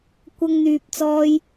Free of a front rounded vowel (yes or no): no